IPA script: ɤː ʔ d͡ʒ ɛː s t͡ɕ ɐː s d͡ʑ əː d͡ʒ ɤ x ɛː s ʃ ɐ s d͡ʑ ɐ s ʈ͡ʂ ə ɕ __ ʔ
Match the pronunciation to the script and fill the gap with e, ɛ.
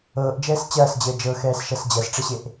e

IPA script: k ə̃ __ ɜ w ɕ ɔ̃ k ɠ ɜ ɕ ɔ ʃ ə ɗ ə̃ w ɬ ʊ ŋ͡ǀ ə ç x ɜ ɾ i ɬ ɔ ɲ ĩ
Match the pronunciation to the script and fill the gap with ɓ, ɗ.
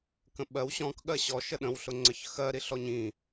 ɓ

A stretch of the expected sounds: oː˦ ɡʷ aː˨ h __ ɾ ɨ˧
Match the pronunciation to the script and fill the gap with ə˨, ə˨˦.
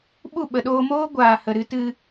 ə˨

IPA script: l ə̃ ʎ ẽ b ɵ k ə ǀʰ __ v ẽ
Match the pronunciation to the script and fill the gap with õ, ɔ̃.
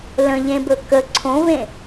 õ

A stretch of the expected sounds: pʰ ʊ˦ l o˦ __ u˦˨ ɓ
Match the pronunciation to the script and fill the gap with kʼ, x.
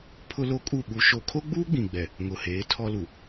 kʼ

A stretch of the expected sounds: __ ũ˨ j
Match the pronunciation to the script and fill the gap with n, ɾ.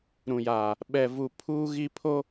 ɾ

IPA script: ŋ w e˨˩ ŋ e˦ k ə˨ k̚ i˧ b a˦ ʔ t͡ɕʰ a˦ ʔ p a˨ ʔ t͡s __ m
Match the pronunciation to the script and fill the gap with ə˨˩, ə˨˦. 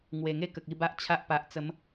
ə˨˦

